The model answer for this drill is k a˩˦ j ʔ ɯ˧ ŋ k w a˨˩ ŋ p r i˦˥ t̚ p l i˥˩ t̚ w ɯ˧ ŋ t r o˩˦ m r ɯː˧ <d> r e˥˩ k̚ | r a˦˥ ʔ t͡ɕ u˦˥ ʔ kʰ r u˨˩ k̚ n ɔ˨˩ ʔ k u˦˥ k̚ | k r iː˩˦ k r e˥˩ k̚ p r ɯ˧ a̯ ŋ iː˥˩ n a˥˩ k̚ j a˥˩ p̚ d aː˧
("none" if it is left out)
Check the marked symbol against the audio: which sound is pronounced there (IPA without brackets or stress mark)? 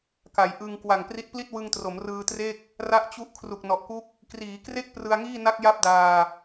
t